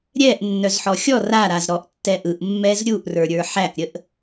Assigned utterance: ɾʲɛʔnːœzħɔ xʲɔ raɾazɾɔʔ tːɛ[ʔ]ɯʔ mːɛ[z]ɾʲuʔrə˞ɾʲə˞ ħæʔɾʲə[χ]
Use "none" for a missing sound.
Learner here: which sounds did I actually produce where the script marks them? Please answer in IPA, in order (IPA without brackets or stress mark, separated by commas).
ʔ, z, ʔ